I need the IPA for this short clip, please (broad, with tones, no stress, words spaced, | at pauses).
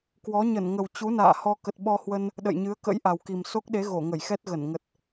kwɔ˨˦ ɲə˧˩nŋə˨˩w t͡ɕu˨˦na̰ː˧˨ hɔ˧ kə˨˩t̚ ɓɔ˧hwə˧n | ɗə̰˧˨jɲɨ˨˦ə̯ kə̰˧˥j ʔa˨˩wki˨˩m so˦˥k̚ɗe˨˦ ɣo˧˩ŋə˧˩j xɛ˦˥t̚ɣə˧˩n ŋə˨˩t̚